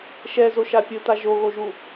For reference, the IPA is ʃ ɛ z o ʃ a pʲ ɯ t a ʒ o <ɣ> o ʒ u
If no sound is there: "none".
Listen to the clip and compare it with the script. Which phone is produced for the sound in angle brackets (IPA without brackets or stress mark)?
ɣ